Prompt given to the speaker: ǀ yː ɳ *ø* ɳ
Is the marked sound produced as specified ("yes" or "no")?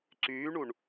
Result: no